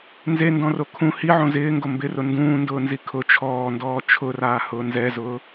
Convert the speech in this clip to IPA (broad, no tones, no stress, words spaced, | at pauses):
nzendɔ̃ro kʰũ hiʕõ zɪːŋɡo mbɪrʊ ndũːndʊːnzi kʰʊ t͡ʃʰɔːndɔː t͡ʃʰʊraːhʊː nzɛzʊː